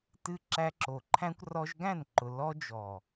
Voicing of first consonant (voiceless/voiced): voiceless